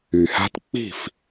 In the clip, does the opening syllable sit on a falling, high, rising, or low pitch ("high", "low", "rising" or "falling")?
low